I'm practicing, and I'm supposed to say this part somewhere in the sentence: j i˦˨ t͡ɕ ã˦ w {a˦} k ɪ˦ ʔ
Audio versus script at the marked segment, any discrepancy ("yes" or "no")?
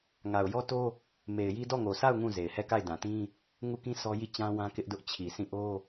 yes